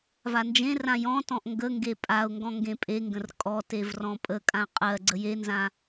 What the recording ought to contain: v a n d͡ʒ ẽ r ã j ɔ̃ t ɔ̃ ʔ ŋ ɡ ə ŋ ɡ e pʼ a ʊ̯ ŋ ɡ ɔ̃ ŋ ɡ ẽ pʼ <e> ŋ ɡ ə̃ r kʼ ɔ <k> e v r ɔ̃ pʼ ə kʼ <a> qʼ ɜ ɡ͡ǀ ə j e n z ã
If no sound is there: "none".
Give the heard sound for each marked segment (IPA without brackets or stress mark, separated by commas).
e, t, ã